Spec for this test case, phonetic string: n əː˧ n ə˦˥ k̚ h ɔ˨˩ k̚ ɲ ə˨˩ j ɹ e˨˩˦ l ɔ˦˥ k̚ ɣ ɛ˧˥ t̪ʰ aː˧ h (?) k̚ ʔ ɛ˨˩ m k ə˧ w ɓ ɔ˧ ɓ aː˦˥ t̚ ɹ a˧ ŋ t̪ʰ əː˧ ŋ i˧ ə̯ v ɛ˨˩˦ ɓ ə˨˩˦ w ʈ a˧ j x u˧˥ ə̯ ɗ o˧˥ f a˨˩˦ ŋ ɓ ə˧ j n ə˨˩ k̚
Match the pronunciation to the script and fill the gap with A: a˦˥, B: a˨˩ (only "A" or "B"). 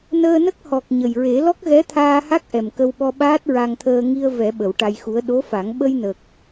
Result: A